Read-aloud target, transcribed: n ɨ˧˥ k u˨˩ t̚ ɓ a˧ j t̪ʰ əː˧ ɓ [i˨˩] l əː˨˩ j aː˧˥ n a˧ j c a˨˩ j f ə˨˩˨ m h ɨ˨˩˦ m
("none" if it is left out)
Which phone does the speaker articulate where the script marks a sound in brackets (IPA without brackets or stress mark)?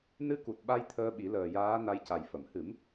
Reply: i˨˩˦